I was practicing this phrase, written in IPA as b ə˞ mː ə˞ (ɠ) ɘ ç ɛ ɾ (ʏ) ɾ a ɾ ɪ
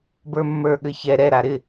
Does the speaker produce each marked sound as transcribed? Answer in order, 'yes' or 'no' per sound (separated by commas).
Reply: yes, no